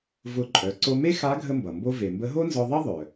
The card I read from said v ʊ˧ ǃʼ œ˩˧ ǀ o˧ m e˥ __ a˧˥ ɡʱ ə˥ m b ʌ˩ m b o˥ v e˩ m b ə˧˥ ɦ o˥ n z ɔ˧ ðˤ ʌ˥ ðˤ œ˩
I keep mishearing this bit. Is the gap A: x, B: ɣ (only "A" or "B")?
A